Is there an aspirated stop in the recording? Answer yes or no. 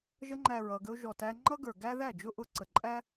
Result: no